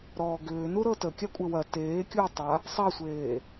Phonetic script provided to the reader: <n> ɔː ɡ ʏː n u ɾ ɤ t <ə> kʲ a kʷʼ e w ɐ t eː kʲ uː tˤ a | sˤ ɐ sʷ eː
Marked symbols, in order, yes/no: no, yes

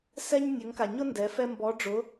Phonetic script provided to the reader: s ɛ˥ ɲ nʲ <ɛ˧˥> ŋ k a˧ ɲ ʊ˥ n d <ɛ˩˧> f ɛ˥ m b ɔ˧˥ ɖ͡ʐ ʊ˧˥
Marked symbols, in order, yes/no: no, no

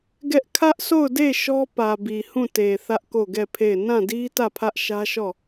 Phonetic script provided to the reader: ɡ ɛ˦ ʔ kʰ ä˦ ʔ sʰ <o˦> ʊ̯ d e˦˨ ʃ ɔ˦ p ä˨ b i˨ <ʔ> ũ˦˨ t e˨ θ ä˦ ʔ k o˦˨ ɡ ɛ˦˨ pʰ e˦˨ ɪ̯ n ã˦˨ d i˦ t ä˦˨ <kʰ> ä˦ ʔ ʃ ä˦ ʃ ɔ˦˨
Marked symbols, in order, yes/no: no, no, no

